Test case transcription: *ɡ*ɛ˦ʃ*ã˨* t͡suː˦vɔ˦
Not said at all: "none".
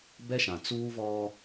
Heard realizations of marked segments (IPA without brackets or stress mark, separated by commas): b, ã˨